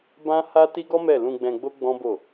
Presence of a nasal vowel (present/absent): present